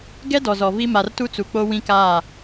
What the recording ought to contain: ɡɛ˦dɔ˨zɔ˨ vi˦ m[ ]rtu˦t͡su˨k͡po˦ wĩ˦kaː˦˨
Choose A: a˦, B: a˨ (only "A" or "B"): B